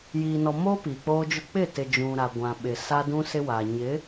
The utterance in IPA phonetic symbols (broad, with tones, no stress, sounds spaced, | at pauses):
j iː˨ n ɔ˨ m oː˦ p iː˨ k͡p oː˦ d͡ʒ ʊ˦ k͡p ɪ˦˨ t ɪ˨ d͡ʒ ũ˨ ɾ a˨ ɡʷ ã˨ ɓ ɪ˨ s a˦ d ũ˦ s ɪ˦ w a˨ ɲ ɪ˨˦